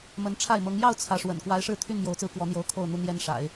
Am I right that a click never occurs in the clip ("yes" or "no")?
yes